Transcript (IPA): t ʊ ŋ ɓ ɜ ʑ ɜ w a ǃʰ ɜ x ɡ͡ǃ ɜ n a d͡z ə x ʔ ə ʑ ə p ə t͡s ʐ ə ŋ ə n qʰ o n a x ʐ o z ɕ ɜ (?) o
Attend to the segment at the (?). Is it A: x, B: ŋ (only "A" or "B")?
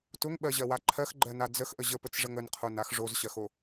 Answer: A